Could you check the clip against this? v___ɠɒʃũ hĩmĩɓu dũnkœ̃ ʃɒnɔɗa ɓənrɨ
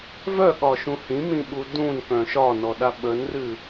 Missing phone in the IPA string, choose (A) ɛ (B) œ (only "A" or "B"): B